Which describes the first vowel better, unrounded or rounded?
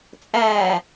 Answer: unrounded